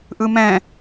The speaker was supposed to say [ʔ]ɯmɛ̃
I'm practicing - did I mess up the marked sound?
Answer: no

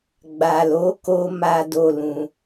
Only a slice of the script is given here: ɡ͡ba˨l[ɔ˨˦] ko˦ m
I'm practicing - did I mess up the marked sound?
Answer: yes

